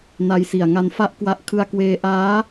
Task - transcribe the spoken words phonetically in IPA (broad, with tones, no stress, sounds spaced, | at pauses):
n a˧ j s i˨˩ a̯ ŋ a˦˥ n f a˥˩ ʔ k w a˦˥ ʔ kʰ ɯ˧ a̯ k w eː˧ ʔ aː˦˥